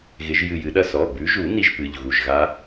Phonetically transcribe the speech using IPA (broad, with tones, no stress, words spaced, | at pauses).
ɣɪ˨˦ʒjɨ˧˩jɨ˨˦ɗɐ˥˧ sɔ˩˧˩bʉ˨˦ʒu˨˩˦ ni˦˥ʒpɨ˩˧˩ʎ ɣu˧˩ʒɣa˦˥